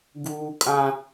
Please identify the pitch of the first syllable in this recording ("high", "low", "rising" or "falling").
high